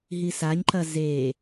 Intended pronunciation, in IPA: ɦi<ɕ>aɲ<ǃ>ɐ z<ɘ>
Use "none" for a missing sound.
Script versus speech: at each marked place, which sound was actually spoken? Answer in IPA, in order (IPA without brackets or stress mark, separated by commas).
s, ǃ, e